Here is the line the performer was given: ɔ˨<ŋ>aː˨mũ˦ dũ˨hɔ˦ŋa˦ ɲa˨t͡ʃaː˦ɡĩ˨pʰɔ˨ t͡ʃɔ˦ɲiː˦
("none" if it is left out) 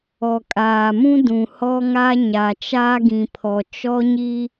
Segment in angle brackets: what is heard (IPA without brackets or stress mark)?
kʼ